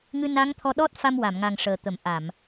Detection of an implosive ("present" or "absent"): present